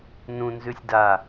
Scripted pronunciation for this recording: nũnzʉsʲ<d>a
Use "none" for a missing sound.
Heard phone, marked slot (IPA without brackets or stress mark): d